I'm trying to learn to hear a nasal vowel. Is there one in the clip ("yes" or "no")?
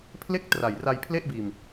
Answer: no